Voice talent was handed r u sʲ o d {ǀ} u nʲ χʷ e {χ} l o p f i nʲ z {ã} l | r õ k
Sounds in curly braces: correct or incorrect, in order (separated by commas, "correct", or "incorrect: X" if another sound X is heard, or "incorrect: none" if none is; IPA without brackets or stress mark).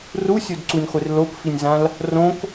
correct, incorrect: r, correct